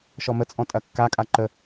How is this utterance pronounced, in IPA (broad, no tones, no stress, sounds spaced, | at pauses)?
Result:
ʃ ɔ m ə t͡sʼ ɔ̃ tʼ ɐ kː a kʼ a ǃ ə